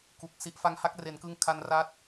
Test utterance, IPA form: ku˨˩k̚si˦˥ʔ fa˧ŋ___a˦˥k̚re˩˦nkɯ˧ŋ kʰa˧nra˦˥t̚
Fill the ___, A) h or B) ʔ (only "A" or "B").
A